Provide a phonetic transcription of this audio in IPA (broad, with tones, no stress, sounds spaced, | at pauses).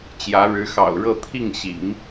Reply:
t͡ɕ j ä˧˥ ɻ ɻ̩˧˥ x ɑ̰˨˩ ʊ̯ ɻ ɤ˥˧ t̪ʰ i˥˩ ŋ ɕ ḭ˨˩˦ ŋ